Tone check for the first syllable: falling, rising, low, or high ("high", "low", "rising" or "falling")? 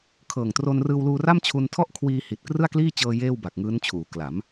low